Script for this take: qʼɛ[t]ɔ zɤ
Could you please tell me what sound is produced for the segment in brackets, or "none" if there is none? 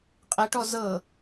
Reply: ʈ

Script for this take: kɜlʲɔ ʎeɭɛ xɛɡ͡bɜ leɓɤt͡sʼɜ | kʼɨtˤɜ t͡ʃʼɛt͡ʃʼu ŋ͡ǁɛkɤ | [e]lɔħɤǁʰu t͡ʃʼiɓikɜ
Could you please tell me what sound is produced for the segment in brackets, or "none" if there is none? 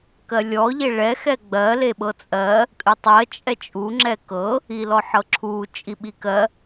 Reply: i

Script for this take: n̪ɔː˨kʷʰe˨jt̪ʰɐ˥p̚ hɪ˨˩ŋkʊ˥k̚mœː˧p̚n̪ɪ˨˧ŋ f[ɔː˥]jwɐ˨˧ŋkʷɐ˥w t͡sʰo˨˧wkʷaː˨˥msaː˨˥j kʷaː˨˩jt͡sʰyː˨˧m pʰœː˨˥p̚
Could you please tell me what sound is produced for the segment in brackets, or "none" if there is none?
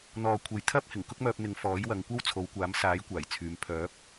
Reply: ɔː˨˥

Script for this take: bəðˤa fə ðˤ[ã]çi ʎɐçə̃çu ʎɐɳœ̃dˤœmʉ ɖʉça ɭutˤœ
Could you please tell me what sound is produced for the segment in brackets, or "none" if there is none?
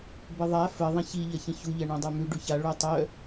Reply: ɐ̃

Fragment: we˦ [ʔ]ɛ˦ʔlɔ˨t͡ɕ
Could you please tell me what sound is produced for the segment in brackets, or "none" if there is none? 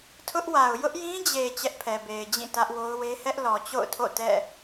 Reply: h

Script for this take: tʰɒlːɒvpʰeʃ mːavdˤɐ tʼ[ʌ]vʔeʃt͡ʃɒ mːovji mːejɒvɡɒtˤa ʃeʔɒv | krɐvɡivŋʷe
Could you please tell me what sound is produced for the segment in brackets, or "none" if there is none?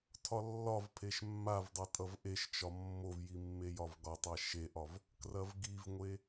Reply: ʌ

